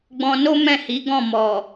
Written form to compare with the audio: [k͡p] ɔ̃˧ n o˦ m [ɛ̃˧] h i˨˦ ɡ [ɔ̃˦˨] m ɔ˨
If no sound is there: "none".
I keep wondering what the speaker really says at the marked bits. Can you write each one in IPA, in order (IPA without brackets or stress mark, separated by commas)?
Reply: ɡ͡b, ɛ̃˦˨, ɔ̃˦˨